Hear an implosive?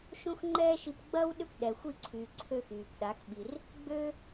yes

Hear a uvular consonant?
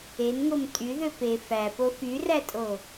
no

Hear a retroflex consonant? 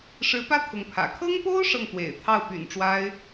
yes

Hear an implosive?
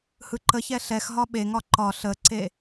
yes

